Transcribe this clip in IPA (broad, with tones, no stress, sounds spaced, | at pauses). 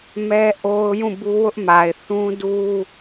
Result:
m ɛ˦ ʔ o˦ ʊ̯ j ũ˦˨ b u˦ w ʊ˦ ʔ m a˨ ɪ̯ θ ũ˦ d u˦